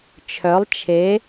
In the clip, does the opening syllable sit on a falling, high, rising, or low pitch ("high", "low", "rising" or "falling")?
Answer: rising